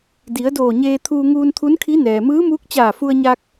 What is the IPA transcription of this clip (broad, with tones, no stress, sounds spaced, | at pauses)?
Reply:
d i˩˧ ə̯ d oː˧˩ ɲ eː˧ t̪ʰ uː˧ ŋ uː˧ n t̪ʰ u˧˥ n kʰ i˧˥ n ɛː˩ m ɯː˧˥ m uː˧˥ k̚ t͡ɕ aː˧˩ f u˧ ə̯ ɲ a˧ k̚